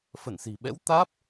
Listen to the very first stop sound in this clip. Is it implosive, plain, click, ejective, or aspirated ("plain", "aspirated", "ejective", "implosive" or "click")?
implosive